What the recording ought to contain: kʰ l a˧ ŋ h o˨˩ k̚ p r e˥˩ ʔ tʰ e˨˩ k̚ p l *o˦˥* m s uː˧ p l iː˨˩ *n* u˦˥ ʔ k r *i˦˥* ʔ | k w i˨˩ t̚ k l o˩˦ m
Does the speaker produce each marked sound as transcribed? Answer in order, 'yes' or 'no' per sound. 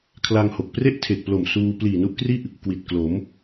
no, yes, no

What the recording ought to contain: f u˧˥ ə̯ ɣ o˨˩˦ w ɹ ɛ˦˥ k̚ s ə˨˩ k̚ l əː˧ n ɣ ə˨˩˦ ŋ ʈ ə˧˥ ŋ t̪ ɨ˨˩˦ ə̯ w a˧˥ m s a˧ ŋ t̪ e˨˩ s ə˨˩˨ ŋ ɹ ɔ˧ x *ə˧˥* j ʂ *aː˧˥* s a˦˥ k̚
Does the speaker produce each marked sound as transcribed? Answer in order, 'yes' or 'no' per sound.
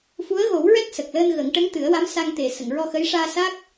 yes, no

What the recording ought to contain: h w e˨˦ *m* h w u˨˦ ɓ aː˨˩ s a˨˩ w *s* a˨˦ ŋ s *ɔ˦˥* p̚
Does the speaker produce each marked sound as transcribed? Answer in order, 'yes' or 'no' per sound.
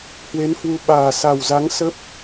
no, no, no

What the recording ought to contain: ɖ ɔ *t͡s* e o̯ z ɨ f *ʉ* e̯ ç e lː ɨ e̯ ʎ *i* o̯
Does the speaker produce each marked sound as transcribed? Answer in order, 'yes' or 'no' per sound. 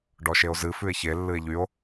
no, yes, no

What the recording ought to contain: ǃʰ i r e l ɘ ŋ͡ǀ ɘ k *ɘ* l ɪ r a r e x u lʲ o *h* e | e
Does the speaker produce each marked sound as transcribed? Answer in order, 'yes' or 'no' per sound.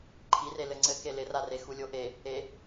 no, no

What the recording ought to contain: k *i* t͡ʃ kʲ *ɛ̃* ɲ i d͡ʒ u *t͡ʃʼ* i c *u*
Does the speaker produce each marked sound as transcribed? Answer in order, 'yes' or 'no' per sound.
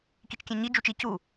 yes, yes, no, yes

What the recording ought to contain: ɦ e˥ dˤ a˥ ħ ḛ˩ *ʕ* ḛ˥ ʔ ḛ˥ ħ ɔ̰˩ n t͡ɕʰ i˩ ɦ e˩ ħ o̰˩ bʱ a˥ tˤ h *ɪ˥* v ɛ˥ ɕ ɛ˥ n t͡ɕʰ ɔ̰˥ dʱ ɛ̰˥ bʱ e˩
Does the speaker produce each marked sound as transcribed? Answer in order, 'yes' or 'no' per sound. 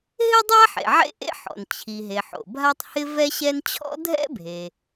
yes, yes

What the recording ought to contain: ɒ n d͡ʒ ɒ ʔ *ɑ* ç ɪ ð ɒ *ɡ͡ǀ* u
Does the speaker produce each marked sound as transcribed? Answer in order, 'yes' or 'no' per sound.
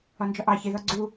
yes, yes

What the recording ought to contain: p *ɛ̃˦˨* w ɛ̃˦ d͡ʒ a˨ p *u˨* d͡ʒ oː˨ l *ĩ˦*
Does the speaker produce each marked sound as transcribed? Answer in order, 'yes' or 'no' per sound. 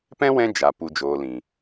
no, yes, no

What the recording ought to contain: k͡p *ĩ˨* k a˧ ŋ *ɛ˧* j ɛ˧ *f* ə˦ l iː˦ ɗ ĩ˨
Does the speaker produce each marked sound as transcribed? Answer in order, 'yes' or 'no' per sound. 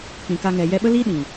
yes, no, no

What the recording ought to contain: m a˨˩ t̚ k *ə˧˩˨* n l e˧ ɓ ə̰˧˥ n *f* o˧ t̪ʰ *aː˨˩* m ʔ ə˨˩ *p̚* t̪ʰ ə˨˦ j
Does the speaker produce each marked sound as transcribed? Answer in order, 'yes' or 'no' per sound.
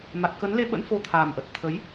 no, yes, yes, no

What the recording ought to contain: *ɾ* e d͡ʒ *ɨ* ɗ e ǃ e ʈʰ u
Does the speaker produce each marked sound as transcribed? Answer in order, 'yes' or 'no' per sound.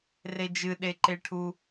no, yes

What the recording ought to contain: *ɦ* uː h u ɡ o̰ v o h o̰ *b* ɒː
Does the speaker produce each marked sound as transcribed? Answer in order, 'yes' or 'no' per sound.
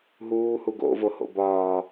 yes, yes

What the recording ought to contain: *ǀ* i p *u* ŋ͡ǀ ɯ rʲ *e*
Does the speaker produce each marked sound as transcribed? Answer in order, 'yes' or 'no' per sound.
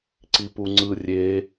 yes, yes, yes

